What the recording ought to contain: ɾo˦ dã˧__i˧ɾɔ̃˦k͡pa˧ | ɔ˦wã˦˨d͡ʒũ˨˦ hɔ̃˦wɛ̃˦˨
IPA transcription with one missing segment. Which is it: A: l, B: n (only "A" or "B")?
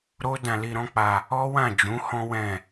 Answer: A